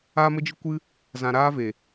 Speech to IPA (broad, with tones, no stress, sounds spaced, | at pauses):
aː˦ m ə˦ d͡ʒ ɨ˦ kʷ ɨ˦ | z ã˧ ɾ aː˦ v e˨